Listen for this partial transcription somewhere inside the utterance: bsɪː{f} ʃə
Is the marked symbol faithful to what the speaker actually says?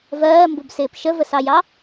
no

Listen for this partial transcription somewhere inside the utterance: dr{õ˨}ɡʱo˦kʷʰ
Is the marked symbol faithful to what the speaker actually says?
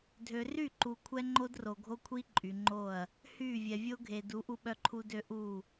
no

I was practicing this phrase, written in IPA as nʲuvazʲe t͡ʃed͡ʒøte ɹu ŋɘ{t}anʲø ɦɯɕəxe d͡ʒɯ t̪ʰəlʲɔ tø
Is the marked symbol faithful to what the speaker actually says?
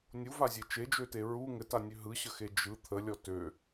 yes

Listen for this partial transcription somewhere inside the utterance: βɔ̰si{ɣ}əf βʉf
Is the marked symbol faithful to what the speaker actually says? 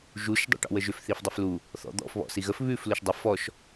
yes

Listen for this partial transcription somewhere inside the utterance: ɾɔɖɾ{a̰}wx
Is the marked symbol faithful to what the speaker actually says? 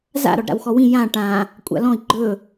yes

